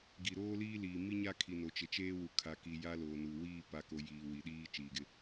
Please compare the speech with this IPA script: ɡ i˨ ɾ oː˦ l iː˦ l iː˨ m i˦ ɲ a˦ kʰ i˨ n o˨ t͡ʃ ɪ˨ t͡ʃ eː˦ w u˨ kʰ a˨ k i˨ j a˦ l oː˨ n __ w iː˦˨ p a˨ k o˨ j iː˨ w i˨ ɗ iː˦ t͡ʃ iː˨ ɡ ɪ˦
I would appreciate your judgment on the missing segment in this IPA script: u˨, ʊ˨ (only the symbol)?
u˨